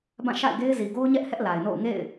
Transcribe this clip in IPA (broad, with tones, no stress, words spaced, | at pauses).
bã˦˨ʃa̰˦˨ɪ̯ɡe˦ɪ̯ zi˨ɡo˦ʊ̯ɲɛ˦ʔ hɛ˦ʔla˨ɪ̯no̰˦˨ʊ̯ ŋḛ˦˨ɪ̯